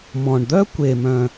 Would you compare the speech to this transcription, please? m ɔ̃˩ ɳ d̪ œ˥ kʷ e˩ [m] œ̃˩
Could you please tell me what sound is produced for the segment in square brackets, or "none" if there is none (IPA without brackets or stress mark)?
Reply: m